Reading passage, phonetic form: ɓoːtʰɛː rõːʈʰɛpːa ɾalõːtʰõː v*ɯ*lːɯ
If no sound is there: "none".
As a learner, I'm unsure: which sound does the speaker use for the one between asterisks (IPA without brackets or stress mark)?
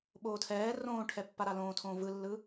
ɯ